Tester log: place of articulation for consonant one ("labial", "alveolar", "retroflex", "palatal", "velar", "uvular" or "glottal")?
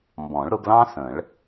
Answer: labial